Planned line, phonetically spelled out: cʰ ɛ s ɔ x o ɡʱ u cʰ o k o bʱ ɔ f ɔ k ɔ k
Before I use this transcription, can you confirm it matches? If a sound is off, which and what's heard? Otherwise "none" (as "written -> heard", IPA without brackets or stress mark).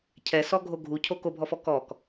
x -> ɡʱ